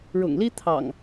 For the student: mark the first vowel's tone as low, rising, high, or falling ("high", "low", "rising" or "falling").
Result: low